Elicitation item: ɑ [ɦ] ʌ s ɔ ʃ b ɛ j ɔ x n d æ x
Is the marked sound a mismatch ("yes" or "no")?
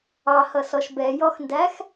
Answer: yes